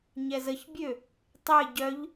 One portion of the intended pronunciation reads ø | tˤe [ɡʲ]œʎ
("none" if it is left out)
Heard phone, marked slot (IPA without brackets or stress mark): ɟ